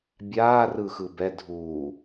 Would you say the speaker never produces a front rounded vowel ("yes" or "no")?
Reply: yes